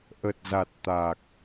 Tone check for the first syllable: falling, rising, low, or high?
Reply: low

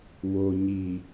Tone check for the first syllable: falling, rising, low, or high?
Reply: low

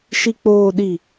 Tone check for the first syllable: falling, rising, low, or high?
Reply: low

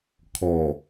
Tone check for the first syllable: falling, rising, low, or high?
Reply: low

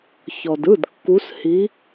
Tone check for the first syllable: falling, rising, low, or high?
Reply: low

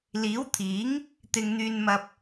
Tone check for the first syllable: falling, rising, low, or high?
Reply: rising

